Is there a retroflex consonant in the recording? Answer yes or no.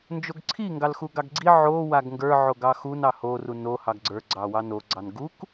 no